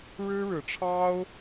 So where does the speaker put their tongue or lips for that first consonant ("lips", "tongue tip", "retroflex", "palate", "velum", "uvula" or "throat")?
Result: retroflex